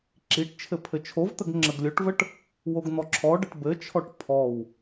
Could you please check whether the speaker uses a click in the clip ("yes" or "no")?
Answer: yes